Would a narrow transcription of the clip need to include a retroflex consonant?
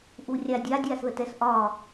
no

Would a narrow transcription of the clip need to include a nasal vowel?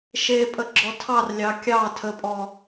no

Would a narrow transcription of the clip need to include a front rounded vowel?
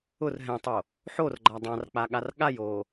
no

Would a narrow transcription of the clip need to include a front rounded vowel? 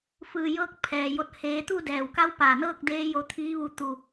no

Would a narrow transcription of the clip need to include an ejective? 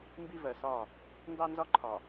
no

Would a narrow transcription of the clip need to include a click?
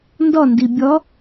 no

